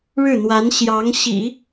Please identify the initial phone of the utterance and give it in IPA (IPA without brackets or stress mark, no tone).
ɻ